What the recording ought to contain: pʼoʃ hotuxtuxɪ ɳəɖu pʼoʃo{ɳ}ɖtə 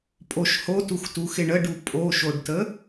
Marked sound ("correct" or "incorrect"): incorrect